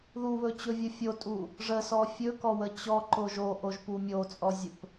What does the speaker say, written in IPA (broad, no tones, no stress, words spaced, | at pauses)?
ðuβɵt͡ɕɵvʲɨ fʲotʼu | ʐəsɔ fʲɵkɔwə t͡ɕɔǃo ʒoʔoʒpu mʲot͡sʼɔzʲɵp